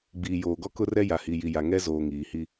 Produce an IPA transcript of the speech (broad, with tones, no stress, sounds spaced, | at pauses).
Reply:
ɡ͡b iː˨ j oː˨ ɡ ɔ˦ k ʊ˦ r ɛ˦ j a˨ h i˨ j i˨ j a˨ ŋ ɛ˦ z oː˨ ŋ iː˨ h i˦